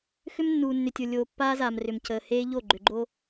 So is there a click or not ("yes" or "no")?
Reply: yes